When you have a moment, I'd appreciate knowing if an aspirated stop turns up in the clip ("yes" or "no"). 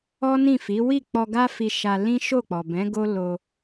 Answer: no